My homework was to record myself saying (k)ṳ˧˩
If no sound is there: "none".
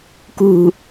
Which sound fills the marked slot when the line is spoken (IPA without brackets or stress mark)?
k